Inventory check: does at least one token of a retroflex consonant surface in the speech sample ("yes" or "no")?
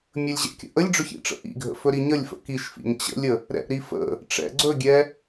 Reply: yes